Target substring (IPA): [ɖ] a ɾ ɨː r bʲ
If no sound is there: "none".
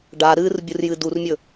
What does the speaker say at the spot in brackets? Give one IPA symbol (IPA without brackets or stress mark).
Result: ɖ